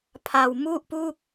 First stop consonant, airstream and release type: aspirated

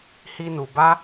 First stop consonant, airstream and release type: plain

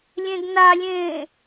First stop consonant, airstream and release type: plain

